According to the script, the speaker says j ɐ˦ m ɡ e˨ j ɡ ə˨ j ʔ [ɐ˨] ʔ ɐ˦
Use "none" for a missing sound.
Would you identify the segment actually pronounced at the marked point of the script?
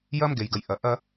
ɐ˨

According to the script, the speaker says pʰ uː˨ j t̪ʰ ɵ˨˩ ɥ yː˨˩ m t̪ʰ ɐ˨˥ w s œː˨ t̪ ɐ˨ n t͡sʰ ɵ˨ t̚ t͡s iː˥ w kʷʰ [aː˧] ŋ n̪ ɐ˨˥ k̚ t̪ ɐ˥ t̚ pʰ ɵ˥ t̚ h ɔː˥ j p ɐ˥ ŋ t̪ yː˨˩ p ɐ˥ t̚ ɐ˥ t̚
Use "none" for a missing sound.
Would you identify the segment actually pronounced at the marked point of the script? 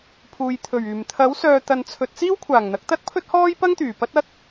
aː˨˩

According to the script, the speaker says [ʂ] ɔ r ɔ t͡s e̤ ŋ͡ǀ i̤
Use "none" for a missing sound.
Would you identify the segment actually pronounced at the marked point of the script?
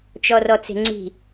t͡ʃ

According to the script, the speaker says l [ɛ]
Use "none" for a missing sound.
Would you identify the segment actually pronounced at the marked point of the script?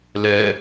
ɛ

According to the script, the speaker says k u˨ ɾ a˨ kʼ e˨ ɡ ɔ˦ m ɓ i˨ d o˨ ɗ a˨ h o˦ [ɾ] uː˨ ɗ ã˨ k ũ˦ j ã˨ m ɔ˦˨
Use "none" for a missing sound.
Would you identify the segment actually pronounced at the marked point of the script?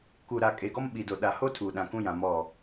tʰ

